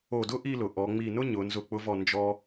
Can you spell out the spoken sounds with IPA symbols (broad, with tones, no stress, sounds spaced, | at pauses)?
o˧˩ d ʊ˥ ʔ i˥˧ l ʊ˩˧ ʔ ɔ˩˧ ŋ͡m i˧˩ n ʊ˥ ɲ ʊ˩˧ n z ʊ˧˩ k͡p ʊ˧ v ɔ˧˩ n d͡ʒ ɔ˧